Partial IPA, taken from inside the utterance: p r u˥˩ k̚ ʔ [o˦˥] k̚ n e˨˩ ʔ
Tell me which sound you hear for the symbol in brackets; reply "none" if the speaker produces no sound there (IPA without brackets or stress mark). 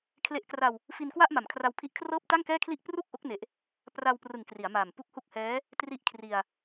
o˦˥